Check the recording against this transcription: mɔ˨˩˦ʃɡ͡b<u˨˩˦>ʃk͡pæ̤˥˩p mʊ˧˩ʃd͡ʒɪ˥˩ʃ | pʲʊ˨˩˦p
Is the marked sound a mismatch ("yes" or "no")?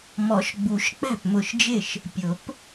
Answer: no